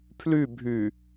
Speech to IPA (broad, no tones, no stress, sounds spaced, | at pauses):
pʰ l y bʱ y